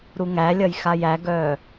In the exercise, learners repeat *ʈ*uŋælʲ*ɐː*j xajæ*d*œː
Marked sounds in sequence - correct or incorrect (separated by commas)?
incorrect, incorrect, incorrect